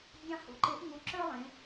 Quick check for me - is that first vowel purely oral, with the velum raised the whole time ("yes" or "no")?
no